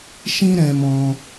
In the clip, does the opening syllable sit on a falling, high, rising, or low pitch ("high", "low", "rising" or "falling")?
high